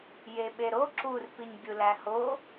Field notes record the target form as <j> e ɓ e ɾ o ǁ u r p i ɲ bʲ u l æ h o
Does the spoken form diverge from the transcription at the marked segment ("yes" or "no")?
no